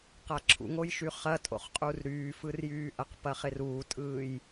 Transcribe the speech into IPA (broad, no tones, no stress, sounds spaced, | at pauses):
q a ǁʰ ṵ ŋ o j ʃ y χ ɐ tʼ o̰ χ qʼ u r ɾ yː f ɯ r j yː ʔ ɐ q p ɐ χ ɪ r uː tʼ ɯː j